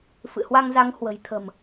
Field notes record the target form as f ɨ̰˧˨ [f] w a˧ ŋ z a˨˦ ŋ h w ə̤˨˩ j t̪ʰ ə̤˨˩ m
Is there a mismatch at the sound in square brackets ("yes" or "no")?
yes